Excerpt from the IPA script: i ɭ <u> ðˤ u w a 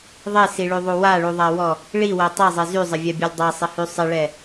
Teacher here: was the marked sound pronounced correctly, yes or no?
no